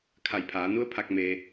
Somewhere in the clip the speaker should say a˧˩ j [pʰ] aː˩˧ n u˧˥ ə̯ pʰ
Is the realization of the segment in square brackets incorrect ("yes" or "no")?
no